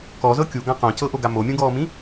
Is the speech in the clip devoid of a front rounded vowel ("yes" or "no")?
yes